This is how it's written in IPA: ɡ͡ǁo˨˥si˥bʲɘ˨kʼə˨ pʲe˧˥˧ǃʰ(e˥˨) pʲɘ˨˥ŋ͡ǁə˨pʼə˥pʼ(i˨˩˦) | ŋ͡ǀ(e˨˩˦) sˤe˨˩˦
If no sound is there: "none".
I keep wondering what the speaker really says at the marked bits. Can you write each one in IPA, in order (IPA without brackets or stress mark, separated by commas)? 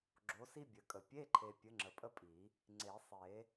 e˨, i˨˩˦, e˨˩˦